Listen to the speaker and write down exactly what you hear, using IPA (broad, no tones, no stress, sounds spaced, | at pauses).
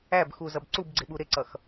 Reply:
æ b x u z ʌ b ǀ u b ɡ͡ǀ ɪ ɓ u ɾ ɪ ǀ ʌ x